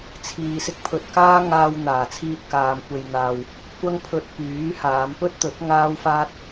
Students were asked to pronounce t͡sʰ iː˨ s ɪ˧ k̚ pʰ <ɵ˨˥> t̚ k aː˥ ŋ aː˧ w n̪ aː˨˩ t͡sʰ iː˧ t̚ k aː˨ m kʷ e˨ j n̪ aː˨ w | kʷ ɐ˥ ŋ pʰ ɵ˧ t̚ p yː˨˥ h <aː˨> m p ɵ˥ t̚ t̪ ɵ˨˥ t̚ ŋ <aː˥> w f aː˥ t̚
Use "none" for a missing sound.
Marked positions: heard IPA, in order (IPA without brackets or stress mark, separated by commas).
ɵ˨, aː˨˧, aː˥